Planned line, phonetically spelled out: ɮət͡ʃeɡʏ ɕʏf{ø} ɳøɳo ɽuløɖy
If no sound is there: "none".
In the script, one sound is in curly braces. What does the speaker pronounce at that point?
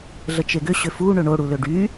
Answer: u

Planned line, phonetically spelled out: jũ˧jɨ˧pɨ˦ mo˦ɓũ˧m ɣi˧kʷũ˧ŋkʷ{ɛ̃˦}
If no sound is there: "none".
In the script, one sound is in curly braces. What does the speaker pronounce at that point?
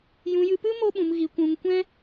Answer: ɛ̃˦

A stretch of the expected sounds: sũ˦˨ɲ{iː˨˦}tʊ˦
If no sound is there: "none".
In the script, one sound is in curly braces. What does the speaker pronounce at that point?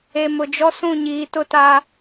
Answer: iː˨˦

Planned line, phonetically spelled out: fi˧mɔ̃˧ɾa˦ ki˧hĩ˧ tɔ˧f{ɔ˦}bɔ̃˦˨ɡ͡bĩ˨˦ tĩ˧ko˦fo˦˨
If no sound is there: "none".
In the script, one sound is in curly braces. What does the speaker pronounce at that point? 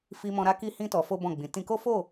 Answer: o˦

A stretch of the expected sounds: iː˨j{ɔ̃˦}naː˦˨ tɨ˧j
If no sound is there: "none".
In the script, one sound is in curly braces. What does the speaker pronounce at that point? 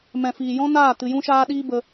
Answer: ɔ̃˦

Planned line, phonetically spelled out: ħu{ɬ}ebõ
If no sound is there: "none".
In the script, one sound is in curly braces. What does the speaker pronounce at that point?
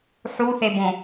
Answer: θ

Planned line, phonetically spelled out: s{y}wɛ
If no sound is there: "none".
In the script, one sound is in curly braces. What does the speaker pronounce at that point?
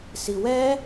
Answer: i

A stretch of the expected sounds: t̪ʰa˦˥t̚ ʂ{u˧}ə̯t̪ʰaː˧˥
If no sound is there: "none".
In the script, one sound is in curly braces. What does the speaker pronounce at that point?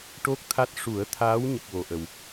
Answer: u˨˩˦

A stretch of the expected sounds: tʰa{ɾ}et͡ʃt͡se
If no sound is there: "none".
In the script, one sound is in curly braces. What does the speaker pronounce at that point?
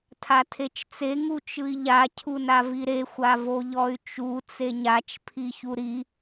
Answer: tʰ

